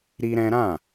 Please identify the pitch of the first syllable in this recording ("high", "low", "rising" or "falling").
high